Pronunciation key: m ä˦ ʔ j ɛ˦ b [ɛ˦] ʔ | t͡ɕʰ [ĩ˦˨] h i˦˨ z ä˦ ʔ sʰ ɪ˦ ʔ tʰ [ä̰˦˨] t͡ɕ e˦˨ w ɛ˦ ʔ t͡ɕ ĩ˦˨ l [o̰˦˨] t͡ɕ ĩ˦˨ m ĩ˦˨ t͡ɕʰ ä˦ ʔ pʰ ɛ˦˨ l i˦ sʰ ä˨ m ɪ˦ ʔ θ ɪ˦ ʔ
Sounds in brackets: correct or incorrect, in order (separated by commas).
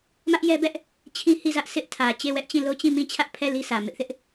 correct, incorrect, incorrect, incorrect